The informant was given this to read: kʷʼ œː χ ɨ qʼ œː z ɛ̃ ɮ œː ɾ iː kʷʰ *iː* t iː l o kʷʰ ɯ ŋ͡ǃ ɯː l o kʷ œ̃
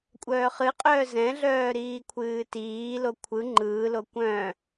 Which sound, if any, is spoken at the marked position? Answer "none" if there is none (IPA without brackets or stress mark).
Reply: ɨː